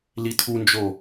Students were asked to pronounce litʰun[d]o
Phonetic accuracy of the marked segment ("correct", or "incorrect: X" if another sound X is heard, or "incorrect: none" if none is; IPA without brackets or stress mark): incorrect: d͡ʒ